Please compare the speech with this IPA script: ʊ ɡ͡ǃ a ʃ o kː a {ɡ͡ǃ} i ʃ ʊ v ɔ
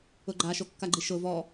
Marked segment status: correct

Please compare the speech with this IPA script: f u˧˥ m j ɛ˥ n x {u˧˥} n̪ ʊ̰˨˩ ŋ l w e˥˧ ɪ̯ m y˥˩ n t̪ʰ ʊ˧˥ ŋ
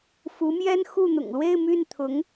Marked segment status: incorrect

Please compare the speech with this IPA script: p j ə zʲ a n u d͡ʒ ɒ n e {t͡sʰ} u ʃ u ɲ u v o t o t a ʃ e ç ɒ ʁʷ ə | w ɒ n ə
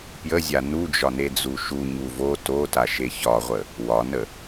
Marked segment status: incorrect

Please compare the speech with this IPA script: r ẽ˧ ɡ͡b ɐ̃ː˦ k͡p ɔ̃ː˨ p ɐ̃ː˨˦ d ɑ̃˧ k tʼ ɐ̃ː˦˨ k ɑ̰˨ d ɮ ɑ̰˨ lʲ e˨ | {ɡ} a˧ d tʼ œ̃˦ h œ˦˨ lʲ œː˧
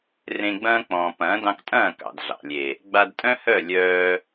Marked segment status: incorrect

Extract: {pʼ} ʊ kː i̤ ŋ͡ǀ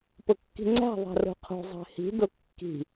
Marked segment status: incorrect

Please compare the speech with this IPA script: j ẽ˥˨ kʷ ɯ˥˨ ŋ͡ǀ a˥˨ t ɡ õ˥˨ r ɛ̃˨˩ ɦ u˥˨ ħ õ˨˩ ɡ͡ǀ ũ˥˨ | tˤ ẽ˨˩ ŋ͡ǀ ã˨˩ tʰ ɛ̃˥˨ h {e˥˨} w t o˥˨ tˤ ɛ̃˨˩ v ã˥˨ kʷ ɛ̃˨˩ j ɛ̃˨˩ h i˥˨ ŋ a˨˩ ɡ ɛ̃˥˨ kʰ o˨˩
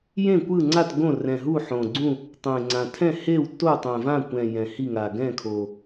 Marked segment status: correct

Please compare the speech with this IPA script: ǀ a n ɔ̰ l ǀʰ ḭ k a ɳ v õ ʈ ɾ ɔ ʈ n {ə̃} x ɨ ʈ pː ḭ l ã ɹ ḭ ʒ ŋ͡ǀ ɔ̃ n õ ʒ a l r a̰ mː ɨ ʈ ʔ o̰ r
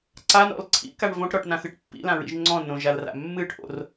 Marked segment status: incorrect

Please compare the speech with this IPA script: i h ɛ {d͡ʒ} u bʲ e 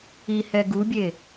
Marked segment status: incorrect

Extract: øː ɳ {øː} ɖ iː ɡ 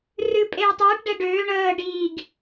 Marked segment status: incorrect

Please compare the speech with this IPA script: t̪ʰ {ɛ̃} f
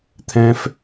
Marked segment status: correct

